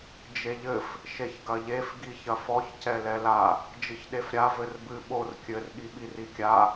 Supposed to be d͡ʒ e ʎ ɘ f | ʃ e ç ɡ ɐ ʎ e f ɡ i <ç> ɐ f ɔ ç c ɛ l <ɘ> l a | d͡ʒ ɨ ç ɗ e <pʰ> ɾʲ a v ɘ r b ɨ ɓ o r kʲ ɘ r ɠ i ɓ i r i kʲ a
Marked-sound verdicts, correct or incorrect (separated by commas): correct, incorrect, incorrect